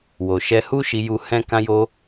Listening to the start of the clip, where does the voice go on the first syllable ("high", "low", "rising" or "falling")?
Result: low